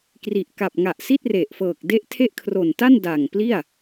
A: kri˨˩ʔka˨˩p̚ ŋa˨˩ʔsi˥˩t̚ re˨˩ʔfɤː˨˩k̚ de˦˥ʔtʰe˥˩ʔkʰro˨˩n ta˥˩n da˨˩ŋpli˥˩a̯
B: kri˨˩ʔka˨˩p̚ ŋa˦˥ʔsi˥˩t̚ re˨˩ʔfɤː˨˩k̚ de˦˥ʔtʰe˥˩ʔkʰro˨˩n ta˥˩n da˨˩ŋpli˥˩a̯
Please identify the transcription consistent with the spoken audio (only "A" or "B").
A